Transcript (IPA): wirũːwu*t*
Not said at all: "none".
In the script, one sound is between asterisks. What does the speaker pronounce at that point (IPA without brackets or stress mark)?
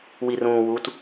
t